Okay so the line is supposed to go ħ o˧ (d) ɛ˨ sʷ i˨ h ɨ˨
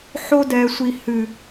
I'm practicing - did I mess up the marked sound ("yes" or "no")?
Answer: no